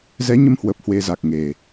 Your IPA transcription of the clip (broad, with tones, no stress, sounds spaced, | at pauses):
z ɛ˨˦ ɲ ə˧ m h w ə˨˩ p̚ h w e˧ z a˨˩ k̚ ŋ e˨˩